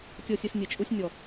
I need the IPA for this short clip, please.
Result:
tʲ ɔ˨ sʲ e˨ s nʲ e˨ t͡ʃʼ u˦ sʲ nʲ ɔ˨

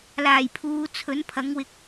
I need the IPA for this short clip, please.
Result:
l aː˨˩ j pʰ uː˨˧ t͡sʰ ɵ˨˥ n pʰ ɐ˨˥ ŋ w ɪ˧ k̚

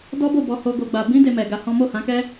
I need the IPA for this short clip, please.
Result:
d ɔ˦ b o˦˨ b ɔ˧ h o˧ ɡ o˨ ɡ͡b a˨ b ĩ˧ d e˧ m ɛ˨ ɡ a˧ h ɔ̃˦ m o˦˨ h ã˨˦ k ɛ˦

